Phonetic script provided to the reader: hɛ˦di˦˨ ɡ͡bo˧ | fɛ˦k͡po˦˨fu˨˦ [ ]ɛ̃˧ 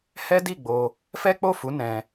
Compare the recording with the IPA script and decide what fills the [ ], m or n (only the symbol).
n